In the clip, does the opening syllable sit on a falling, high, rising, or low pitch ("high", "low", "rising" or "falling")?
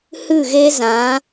falling